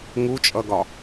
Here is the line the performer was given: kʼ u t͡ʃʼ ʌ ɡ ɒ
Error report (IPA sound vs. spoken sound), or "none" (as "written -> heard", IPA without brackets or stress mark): kʼ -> ŋ